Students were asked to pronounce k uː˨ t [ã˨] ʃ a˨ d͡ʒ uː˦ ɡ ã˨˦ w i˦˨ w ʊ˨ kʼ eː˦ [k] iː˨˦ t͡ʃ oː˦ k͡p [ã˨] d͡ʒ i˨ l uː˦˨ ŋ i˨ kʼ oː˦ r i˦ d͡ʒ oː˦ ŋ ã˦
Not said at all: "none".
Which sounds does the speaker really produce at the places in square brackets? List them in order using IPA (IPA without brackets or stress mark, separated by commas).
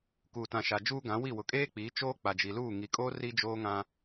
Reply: ã˨, k͡p, a˨